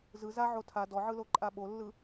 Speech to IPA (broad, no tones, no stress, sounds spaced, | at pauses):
z ɯ z a ʕ o tʰ a d ɔ ʕ ɯ l o ǃʼ a ɓ o lː ɯ